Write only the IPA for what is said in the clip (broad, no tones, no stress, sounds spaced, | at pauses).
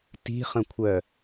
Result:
t i̤ χ ə̃ kʷʰ œ